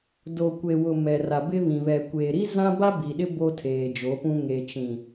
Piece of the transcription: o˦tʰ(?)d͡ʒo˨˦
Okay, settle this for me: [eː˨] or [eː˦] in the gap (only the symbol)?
eː˨